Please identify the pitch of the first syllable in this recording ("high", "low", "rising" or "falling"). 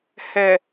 low